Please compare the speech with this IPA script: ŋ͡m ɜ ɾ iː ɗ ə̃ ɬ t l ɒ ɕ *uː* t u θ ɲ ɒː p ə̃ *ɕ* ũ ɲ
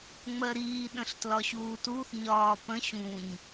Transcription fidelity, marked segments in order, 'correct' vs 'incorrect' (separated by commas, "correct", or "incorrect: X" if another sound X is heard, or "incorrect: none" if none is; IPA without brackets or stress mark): correct, correct